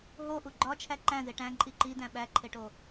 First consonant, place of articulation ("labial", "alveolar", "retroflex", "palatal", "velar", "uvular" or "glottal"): glottal